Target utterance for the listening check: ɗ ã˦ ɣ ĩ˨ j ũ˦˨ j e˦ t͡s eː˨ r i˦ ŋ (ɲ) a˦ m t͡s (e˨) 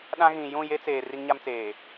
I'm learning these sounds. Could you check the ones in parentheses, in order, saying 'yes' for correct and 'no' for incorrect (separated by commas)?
yes, no